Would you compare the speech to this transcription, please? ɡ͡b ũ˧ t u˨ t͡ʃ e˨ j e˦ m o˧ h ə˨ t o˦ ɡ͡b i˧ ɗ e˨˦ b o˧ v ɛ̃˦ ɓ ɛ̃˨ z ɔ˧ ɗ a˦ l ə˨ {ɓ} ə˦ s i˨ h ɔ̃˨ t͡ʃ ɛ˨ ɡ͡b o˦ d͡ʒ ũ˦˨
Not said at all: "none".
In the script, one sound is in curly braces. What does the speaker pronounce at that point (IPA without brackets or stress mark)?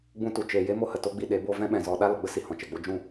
ɡ͡b